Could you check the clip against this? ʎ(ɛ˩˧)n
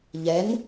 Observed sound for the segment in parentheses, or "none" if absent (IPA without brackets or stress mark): ɛ˩˧